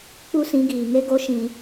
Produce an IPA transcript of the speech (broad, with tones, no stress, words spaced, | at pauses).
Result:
k͡pu˦sĩ˨˦ɡiː˨ŋe˦ ɡo˦ʃĩ˧